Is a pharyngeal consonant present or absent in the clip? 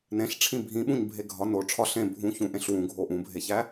absent